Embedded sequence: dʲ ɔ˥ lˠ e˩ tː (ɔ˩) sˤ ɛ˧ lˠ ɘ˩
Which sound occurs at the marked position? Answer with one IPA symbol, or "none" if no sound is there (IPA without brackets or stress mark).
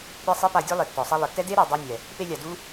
ɔ˩